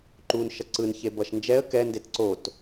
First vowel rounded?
yes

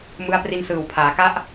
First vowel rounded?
no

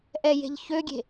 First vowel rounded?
no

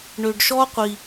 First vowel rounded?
yes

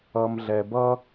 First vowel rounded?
no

